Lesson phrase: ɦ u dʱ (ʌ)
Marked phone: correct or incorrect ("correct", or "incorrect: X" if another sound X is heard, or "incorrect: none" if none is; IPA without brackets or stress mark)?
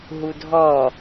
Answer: incorrect: ɔ